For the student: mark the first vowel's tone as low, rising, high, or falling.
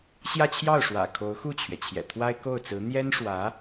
falling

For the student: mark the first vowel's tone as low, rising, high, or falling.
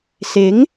rising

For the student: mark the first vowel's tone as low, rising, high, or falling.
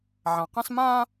low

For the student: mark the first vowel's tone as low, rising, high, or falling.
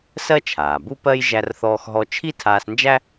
high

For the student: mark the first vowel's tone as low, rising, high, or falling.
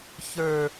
high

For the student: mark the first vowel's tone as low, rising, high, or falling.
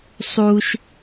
high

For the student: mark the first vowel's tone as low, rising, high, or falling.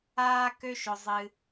high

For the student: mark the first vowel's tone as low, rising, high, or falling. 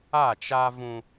falling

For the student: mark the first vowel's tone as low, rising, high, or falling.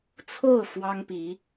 falling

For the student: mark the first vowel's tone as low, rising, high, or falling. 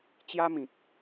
high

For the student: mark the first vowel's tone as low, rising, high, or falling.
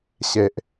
low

